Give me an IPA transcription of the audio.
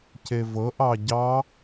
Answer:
cevɤʔɑ ɟɑ

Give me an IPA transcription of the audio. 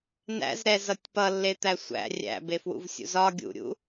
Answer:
næ̰zɾɛzʌtʲ pʌlːet̪æ sʷæ̰ rʲæ̰befwṵvsʲṵz ɒ ɡʲṵɾʲṵ

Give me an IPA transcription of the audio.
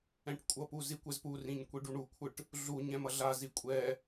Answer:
ɛ̃ʈkʷʼʌpu zikʷɛzpurĩɲ kʷiɖuɳukʷʰɯʈ | ɮu ɲɛ̃mʌɮazi kʷʼɛ

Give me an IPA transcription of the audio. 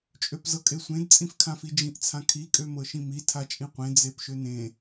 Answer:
t͡ʃʼøpzɤkʼesʷẽd t͡sʼĩfkʰãfid͡ʒĩʔ t͡sʰãkʰi kʼømɤʃĩmi tʰat͡ʃʼĩqʷẽ d͡zepʃønẽ

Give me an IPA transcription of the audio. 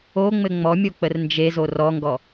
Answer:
o ŋ͡mɘŋ͡mɔmʲo k͡pərnd͡ʒezo rɔŋɡɔ

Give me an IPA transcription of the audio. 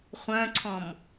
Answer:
χʷœ̃ǀʰɔ̃m

